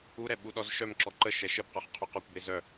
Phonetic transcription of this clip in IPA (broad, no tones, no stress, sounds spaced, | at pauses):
u ɾ ɛ ɓ u ɗ ɔ z ʃ œ m ǁ ɔ ǃ ə ʃ ɛ ʃ ə b q œ χ qʰ ʊ q ɔ kʷ b e z œ